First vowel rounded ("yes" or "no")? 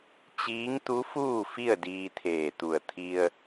no